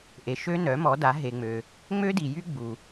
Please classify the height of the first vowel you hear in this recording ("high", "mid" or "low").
mid